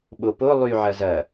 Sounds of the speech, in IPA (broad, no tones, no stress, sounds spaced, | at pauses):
ɓ o p o lˠ y ʕ ɐ z ɐ